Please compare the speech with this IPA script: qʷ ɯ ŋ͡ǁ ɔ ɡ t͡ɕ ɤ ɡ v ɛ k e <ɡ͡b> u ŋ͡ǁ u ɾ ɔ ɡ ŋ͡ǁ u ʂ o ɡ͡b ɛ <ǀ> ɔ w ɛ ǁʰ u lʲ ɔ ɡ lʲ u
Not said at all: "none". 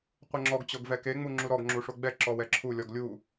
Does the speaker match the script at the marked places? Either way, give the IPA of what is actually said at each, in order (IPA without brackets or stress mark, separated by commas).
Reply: ŋ͡m, ǁ